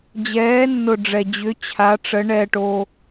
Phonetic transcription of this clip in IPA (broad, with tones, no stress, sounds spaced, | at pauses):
d͡ʑ ɛː˨˦ nː ʊ˨ ɖ͡ʐ ɛ˨ d͡ʑ ʏ˨˦ t͡ɕʰ a˨˦ ʈ͡ʂ ə˨˦ ɳ ɛː˨ ʈ o˨